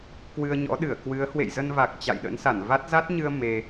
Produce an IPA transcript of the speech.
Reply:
k w ɨ˧ ə̯ ɲ ɔ̰˧˥ ɗ ɨ˧˩ ə̯ k w ɨ˨˦ ə̯ h w ḛ˧˨ j z ə˧ n v a˨˩ k̚ t͡ɕ a̰˧˨ j ɗ ə̰˧˥ n s a˧˩ n v a˦˥ t̚ z a˦˥ t̚ ɲ ɨ˧ ə̯ m e˧

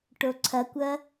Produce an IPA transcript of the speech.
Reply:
ʈ o ǀʰ ɐ kʷ ɐ

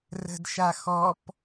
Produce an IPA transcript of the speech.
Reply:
r ə̤ d ʃ a x ɔ p

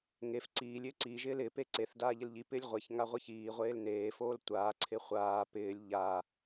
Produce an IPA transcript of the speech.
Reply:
ŋ e f ǀ iː lʲ ɪː ǀ i ʒ ɪː l ɪ p e ǀ e θ d aː ʎ ɪ l ʎ i p ɪː lʲ ʁʷ e ç ŋ a ʁʷ ɪ ç iː ʁʷ eː l n eː f oː l tʷ aː ǀʰ ɪ χʷ aː p ɪː lʲ ʎ a

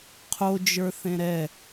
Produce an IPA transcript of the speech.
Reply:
qʰ o d͡ʒ ə˞ θ ẽ ɾ ɛ

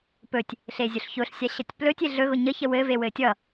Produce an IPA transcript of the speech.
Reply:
p ɵ tʲ | ɬ e zʲ ʊ ɬ ç ʊ ɬ sʲ a ɕ ʌ tʲ p l ɵ tʲ e ɮ ɵ ɣ ʊ ɲ ə ç ə w ɘ v e w ɘ tʲ ʌ

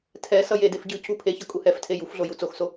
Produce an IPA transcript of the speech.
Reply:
tʰ ɛ s ʌ j e d e f ɟ ɯ c u pʰ e ç ʌ kʼ u h ɛ f tʰ e j u f ɮ o j u t͡s o x s o

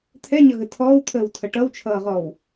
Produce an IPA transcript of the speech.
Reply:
t̪ʰ ɛ ɲ ʌ ɣ ə tʰ ɔː w t̪ʰ əː w tʰ ʌ ʈ ʌ w t͡ʃʰ ʌː ʁ ɔː w

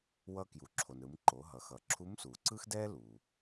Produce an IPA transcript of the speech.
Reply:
w ʌ˧ k j u˩ ǁʰ o˩ n ɾ ɯ˩˧ m ǃ o˩˧ ɦ ʌ˩˧ x ʌ˩ ǁʰ u˧˥ m s u˩ ǀ ɯ˥ x d ɛ˥ l u˩

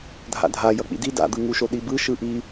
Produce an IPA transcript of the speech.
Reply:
dʱ a̰ dʱ a j ʌ k͡p ḭ d i d a̰ d̪ ɯ ŋ u ʃ o ɗ i b ɯ ʃ ɯ ʔ i

